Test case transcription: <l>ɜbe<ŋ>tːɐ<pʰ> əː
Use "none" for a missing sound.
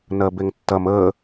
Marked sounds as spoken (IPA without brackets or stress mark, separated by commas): n, ŋ, m